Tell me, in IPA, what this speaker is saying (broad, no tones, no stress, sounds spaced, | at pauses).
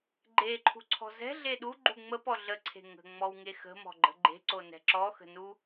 ɡ͡ǃ e ǃʰ ṳ ǀʰ ɔ̤ z ɛ̤ ɮ e ɗ u ɡ͡ǃ u ŋ͡m ə p ɔ ɮ ə ǀʰ e̤ ŋ ə̤ ŋ͡m ɔ w ŋ e x ə̤ m ɔ̤ ɡ͡ǃ ə̤ ɡ͡ǃ e̤ ǀ o n ɛ̤ ǁ ɔ x ə̤ n u